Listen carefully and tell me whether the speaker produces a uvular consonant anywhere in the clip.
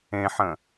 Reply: no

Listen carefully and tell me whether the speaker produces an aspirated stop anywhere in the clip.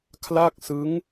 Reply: yes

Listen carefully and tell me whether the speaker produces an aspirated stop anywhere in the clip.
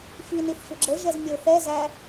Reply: no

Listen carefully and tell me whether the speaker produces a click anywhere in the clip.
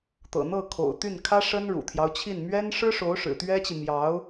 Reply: no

